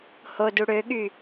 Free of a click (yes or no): yes